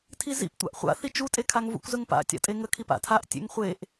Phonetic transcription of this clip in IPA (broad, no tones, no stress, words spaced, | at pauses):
tʰizḭptʷa̰ʔ χʷa̰θi t͡ʃutʼekʰaŋ vṵkʷzəŋpa̰ tʲa̰tʼeŋəkʰip a̰tʰaʔ tʲḛŋχʷeʔ